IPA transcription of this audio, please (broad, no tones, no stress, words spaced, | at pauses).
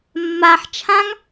mːaħ t͡ʃʰãŋ